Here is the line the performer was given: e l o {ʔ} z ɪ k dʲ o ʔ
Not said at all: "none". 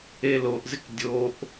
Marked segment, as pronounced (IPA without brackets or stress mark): ʔ